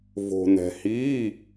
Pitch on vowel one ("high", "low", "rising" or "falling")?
low